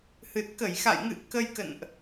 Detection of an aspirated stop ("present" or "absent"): absent